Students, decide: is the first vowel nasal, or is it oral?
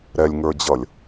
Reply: oral